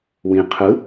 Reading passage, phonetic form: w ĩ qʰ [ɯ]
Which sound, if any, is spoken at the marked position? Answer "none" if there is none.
ɯ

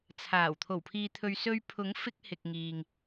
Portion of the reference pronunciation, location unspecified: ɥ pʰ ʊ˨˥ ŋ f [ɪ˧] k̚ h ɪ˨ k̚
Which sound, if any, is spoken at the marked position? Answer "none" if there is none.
ɪ˧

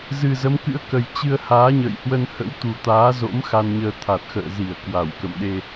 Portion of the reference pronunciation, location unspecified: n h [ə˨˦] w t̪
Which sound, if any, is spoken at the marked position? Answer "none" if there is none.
ə̰˧˥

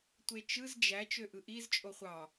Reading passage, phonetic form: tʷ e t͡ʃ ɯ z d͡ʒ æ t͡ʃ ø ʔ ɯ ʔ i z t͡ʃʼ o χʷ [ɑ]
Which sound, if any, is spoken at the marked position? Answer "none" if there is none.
ɑ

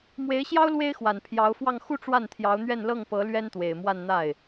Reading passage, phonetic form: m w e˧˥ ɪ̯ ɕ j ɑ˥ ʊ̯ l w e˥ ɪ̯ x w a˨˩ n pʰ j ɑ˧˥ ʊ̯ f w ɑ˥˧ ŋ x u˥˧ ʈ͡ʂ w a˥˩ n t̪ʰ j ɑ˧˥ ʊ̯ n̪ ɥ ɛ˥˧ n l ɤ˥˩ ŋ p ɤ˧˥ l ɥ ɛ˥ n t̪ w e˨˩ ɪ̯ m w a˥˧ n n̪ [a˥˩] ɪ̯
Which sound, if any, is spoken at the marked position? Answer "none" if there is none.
a˥˩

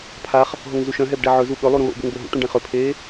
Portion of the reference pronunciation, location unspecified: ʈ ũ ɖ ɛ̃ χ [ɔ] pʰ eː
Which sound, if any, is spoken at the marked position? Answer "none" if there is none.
ɵ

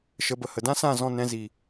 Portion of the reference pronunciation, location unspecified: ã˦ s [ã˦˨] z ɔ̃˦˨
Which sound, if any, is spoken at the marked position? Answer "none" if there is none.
ã˦˨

